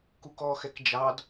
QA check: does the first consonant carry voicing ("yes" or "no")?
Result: no